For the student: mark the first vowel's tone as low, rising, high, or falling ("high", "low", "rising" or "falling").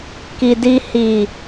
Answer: low